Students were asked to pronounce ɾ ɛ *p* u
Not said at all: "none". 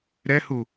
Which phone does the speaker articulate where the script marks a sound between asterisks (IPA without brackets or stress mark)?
h